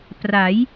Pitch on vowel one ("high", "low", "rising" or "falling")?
rising